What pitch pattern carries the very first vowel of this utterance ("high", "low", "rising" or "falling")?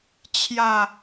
low